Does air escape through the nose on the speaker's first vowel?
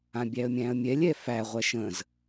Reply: yes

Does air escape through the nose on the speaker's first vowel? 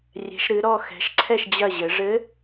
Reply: no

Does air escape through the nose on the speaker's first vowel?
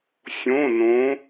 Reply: yes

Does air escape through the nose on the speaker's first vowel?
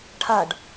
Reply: no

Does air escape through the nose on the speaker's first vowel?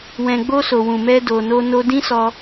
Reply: yes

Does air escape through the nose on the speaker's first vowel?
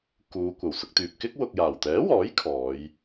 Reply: no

